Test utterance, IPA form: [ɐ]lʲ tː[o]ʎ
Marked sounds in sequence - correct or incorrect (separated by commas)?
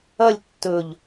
correct, incorrect